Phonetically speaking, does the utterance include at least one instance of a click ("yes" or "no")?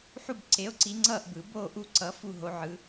yes